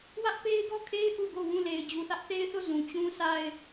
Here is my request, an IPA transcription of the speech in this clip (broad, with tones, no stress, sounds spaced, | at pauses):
w ä˦ ʔ p e˦ ɪ̯ ɡ ɔ˦˨ kʰ e˦ ɪ̯ ʔ u˦˨ ɡ o˦˨ w ũ˦˨ l e˨ ɪ̯ d͡ʑ u˨ θ ä˦ ʔ θ e˦ ɪ̯ θ o˦˨ z ũ˨ t͡ɕ ũ˦ sʰ a˦ ɪ̯